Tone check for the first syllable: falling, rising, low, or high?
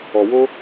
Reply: low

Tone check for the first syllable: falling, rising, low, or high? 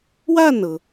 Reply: falling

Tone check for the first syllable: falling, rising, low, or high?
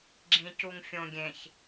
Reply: low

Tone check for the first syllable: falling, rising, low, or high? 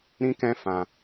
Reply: high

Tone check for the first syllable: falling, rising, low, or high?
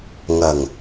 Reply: low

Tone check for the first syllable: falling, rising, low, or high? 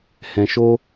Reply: low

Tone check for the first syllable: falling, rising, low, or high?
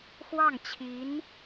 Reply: falling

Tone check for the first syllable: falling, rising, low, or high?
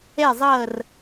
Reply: falling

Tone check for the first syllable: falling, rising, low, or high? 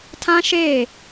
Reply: high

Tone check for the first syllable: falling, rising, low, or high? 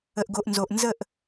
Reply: low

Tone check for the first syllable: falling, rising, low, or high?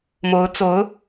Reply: rising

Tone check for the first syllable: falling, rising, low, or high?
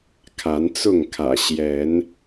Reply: rising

